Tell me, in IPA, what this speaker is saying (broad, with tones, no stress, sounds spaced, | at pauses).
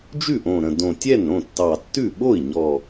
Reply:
d͡ʒ ʉ˥˩ ʔ õ˨˩ ɾ ə̃˨˩ d õ˨˩ tʲ ɛ˥˩ n ɾ õ˥˩ tː ɑ˨˩ tː ʉ˥˩ ɓ o˥˩ i̯ ɲ ɔ˨˩